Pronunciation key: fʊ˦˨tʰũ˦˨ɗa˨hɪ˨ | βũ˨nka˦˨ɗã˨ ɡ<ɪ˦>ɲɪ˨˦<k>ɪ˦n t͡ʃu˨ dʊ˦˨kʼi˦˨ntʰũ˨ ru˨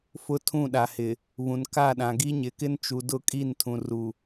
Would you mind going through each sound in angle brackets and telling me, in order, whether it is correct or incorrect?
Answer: incorrect, correct

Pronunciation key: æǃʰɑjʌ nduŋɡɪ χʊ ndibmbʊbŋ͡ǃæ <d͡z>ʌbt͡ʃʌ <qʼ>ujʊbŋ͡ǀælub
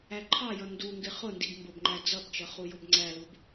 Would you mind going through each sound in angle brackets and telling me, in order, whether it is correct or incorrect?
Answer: correct, incorrect

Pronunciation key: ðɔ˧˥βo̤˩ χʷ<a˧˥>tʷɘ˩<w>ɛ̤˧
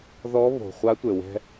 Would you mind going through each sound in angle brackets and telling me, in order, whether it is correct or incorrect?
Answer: correct, correct

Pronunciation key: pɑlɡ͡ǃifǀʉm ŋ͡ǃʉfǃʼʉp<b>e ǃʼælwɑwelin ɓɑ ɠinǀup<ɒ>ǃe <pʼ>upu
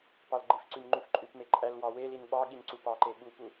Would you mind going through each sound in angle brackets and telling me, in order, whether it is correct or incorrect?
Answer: incorrect, incorrect, incorrect

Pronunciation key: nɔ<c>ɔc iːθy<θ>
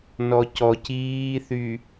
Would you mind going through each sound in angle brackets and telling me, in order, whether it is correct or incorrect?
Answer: correct, incorrect

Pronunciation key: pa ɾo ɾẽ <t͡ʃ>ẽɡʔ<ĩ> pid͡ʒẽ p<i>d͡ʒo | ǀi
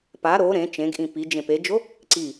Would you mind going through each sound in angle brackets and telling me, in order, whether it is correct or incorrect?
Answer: correct, correct, incorrect

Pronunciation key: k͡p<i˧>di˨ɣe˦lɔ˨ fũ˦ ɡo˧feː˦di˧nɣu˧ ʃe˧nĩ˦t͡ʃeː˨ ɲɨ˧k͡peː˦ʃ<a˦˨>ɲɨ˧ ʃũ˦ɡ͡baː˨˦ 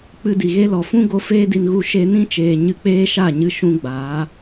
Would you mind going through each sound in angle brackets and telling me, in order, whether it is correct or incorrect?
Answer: incorrect, correct

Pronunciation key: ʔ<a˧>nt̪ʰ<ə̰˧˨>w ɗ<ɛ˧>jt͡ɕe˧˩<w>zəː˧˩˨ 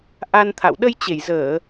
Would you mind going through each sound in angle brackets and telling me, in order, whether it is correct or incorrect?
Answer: correct, incorrect, incorrect, incorrect

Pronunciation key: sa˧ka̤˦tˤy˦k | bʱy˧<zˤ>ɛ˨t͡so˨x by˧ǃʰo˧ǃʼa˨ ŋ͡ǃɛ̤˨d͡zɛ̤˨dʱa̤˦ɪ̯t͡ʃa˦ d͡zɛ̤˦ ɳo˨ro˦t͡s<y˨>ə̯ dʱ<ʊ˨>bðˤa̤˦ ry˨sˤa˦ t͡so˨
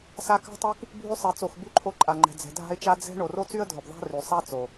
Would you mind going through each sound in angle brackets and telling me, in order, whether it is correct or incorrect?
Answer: incorrect, incorrect, correct

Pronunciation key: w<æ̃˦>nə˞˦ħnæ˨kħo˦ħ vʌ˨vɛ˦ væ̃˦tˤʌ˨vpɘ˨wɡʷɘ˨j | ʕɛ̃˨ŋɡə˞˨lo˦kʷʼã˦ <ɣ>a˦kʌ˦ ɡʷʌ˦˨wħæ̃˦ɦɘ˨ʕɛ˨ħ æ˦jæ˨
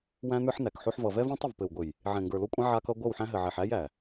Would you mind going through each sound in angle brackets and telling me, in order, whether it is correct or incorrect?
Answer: correct, incorrect

